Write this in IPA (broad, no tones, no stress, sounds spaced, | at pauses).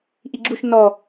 ʔ i ɡ͡ǁ u ʃ n ɔ